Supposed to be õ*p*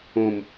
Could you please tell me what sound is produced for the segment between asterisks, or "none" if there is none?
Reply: m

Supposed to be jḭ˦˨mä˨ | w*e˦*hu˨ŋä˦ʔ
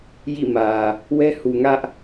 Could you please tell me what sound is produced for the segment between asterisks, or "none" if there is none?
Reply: ɛ˦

